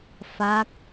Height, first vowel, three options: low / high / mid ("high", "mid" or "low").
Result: low